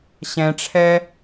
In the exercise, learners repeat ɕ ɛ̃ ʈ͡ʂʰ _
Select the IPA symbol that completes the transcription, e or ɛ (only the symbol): ɛ